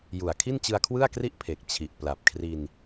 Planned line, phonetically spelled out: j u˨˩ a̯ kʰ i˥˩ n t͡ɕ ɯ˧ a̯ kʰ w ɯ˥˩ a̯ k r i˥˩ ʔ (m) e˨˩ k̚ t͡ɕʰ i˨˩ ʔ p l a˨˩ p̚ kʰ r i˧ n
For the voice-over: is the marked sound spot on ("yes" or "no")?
no